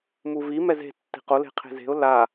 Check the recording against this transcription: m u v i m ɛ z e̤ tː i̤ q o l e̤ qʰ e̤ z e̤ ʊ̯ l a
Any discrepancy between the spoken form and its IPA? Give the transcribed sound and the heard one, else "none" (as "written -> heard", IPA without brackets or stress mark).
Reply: none